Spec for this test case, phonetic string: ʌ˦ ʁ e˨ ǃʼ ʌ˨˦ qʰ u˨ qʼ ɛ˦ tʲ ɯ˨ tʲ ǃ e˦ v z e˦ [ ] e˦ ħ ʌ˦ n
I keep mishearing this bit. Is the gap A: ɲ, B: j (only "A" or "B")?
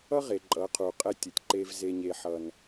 A